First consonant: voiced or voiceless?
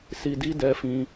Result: voiceless